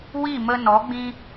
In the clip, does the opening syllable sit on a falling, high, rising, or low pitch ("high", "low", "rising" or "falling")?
falling